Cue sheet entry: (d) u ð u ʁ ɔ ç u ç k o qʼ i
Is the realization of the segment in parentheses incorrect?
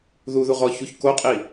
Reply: yes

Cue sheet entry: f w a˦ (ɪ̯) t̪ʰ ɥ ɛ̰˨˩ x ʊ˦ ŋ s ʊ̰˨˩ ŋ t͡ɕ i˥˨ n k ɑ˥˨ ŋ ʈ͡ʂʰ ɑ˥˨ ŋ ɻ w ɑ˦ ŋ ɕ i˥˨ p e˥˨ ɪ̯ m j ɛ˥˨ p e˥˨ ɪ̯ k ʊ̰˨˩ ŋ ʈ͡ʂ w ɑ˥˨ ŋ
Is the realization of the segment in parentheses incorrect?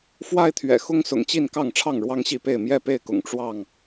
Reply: no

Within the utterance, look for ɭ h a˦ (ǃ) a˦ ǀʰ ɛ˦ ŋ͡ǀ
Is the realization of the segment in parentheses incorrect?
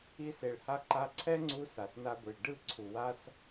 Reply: no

